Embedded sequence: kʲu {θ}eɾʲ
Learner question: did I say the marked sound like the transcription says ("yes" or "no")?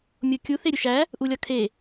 yes